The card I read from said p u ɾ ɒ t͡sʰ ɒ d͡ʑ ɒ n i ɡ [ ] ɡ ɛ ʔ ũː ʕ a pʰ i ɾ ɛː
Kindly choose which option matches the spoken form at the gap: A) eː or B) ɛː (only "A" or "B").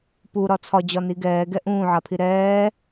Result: B